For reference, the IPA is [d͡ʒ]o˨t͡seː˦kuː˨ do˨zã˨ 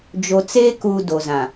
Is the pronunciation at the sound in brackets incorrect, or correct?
correct